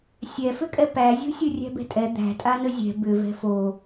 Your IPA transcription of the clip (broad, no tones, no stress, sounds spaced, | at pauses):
sʲ ɛ f ʏ kʼ ɛ p æ zʲ o̤ sʲ ɯ rʲ æ̤ b ɛ̤ tʼ ɛ d̪ æ̤ tʼ a n ə zʲ ɛ̤ b ʏ v ɛ̤ f o